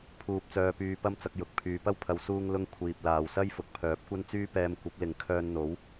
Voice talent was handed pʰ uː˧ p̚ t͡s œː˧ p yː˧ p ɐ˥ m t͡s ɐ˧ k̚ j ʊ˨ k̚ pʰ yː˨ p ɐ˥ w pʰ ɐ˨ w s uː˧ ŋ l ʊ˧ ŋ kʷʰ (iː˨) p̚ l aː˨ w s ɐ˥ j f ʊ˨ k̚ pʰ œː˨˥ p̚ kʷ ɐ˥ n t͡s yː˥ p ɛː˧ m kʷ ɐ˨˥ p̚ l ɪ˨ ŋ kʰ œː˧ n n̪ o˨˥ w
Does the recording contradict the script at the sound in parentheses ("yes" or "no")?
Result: no